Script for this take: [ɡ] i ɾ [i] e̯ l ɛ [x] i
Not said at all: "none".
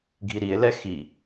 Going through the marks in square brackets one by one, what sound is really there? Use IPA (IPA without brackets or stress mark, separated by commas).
ɡʱ, i, x